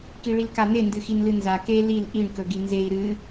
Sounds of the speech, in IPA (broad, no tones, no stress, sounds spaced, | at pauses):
k i ɭ i l k a n e n d ɨ x i n l ɨ n z a k e l i l ʔ i ɳ k ɵ ɡ i n z e i̯ ɾ ɨ